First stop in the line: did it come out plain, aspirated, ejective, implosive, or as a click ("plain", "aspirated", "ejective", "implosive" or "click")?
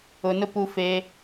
plain